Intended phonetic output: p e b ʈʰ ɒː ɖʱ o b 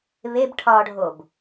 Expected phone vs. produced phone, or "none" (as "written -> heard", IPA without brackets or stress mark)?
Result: p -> β